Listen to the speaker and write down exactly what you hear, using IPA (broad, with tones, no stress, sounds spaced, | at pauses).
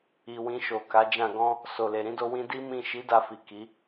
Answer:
i˨ w ĩ˧ ʃ o˨ k a˨˦ d͡ʒ ã˦˨ ɡ ɔ̃˧ | s o˨ l e˨ ɾ ĩ˨˦ d o˧ w ĩ˧ d i˦ m ĩ˦˨ ʃ i˨˦ d a˧ f i˨ k i˨˦